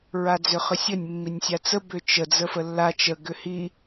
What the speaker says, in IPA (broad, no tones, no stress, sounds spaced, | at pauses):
ɹ a d͡z ʏ χ ʏ sʲ ə nʲ mː i nʲ sʲ a t͡s ə b ʏ t͡ʃ ə d͡z ə f ə lː a t͡ʃ ə ɡ ʏ h i